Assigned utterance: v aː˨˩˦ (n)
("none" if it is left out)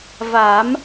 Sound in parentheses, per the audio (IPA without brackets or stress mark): m